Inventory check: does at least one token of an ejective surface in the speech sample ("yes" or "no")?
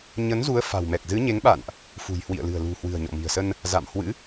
no